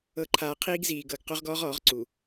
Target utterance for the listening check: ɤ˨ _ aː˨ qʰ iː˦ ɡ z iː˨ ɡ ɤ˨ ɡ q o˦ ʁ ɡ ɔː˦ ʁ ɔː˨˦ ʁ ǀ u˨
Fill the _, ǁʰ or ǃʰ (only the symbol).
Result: ǃʰ